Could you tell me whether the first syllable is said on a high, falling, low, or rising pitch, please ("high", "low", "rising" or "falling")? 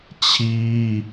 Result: high